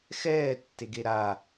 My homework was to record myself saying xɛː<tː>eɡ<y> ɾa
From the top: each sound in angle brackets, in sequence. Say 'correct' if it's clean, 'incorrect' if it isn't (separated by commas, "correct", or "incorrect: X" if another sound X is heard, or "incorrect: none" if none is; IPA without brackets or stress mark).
correct, incorrect: e